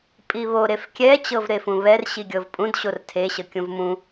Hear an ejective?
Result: yes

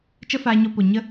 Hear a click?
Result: no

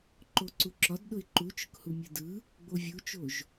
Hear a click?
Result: yes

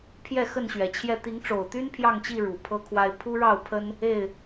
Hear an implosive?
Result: no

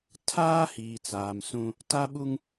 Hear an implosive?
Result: yes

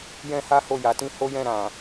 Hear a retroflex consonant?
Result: no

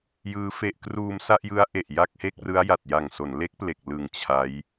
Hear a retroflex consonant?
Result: no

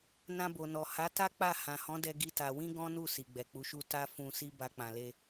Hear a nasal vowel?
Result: yes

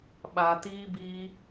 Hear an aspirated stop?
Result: no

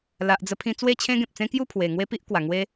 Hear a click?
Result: no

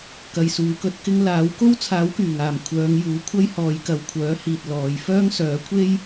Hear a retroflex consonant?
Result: no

